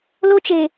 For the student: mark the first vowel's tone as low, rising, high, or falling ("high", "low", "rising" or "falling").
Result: high